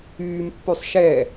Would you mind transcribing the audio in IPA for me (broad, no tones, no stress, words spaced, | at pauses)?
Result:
yːm pːysˤʃɛ